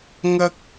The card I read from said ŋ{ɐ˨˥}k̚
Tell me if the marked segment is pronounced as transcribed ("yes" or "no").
no